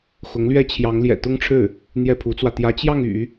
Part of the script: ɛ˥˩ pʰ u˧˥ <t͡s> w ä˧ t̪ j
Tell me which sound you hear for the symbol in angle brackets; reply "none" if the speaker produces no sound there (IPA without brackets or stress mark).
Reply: t͡s